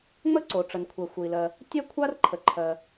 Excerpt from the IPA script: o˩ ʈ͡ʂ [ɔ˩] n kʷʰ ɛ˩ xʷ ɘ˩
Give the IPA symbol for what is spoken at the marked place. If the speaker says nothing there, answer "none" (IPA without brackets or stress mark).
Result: ə˩